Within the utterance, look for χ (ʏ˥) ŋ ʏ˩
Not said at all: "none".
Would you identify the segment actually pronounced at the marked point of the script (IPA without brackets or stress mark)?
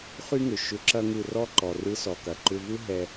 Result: y˥